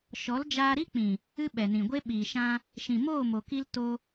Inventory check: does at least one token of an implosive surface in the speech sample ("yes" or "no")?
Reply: yes